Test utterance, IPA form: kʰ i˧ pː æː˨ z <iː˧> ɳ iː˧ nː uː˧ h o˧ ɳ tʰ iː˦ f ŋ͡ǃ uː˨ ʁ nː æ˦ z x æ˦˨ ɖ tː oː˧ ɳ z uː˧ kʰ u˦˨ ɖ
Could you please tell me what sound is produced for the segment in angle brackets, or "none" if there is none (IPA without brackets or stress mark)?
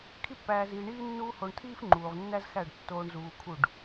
iː˨